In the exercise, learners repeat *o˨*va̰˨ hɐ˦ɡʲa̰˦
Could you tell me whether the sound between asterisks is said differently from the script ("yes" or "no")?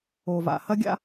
no